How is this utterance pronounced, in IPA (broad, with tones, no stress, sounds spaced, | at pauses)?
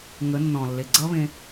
ŋ ə˨˦ nː ɔ̃˨ lː e˨ ɡ͡ǀ ʌ˦ β ẽ˦